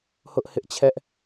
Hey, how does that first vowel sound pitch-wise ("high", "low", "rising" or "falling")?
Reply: high